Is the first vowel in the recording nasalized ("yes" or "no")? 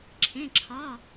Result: yes